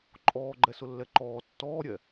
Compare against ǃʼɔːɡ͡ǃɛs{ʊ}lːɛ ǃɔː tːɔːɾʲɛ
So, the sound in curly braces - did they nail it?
yes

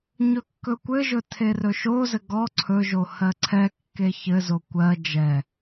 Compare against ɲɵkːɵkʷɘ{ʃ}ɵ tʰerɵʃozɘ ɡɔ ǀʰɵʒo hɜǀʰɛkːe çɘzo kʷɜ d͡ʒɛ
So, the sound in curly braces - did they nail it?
no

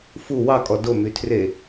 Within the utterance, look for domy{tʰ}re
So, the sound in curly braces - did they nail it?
yes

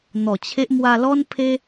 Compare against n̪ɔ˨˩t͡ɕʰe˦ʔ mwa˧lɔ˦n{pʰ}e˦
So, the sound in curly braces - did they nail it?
yes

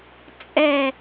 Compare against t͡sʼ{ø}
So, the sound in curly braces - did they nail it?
no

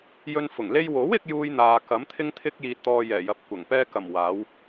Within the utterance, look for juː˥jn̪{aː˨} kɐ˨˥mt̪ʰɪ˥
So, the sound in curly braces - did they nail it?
no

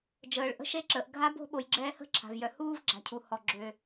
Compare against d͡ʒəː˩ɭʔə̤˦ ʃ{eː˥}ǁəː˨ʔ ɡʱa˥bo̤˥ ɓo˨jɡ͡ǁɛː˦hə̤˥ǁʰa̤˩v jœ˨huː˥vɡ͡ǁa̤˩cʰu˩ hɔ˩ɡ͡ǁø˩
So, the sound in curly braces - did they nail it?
no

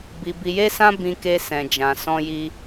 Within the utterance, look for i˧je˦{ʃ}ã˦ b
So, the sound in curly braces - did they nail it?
no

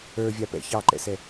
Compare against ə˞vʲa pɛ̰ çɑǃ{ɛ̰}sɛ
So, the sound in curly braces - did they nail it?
yes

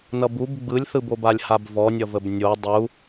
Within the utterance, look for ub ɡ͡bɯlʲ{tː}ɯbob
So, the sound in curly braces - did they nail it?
no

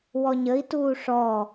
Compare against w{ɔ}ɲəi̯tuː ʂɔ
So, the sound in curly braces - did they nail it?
yes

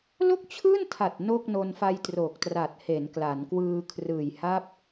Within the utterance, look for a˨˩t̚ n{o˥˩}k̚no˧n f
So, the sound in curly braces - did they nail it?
yes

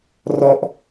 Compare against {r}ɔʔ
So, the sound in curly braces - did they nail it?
yes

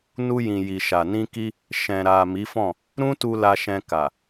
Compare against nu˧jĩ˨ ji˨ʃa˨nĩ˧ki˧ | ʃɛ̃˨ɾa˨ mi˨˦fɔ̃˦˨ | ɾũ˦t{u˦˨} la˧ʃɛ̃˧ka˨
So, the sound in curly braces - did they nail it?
no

